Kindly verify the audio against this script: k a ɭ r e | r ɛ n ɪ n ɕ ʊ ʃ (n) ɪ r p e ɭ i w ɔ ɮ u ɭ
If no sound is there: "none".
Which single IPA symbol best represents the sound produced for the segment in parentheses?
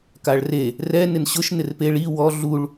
n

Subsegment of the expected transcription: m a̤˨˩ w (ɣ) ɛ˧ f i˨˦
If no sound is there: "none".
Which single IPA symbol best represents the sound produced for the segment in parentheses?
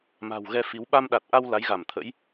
ɣ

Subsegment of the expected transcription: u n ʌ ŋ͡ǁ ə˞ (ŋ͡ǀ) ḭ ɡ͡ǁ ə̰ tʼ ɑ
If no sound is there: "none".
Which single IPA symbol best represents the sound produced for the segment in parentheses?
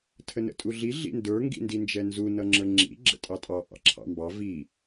ŋ͡ǁ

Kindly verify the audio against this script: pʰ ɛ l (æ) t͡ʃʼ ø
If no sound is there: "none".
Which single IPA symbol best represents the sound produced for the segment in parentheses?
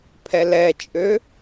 ɛ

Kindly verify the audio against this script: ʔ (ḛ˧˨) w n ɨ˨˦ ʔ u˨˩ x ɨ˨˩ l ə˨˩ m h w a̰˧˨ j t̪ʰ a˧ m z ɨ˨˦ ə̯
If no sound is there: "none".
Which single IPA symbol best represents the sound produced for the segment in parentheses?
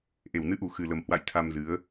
e˨˩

